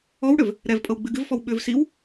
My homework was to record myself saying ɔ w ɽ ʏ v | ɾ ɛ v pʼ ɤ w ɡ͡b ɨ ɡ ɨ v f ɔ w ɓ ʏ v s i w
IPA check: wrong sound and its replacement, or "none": none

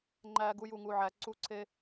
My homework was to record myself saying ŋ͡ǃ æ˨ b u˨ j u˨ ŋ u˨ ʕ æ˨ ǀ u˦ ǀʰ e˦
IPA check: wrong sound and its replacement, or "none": b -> ɡ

